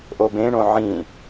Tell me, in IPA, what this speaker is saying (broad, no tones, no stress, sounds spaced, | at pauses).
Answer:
ʔ o b ẽ ɳ õ ʕ ĩ